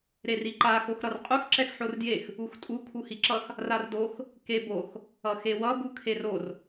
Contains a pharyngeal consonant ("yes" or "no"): yes